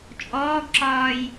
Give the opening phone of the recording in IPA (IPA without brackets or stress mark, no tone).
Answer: t͡ʃʼ